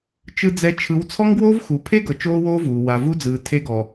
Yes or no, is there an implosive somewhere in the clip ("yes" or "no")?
no